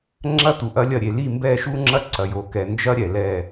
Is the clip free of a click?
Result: no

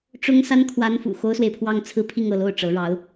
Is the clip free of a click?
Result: yes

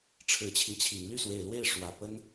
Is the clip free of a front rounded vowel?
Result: no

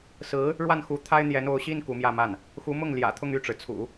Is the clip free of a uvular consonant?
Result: yes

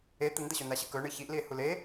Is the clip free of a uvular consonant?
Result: yes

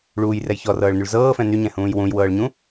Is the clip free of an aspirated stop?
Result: yes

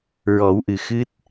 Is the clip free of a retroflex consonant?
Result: yes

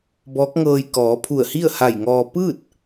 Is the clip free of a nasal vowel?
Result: yes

